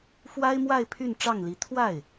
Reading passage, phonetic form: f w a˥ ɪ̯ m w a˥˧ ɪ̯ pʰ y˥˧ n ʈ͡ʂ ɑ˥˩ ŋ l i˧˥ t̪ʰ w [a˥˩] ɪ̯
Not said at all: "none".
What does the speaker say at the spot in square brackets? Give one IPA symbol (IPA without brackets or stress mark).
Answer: a˥˩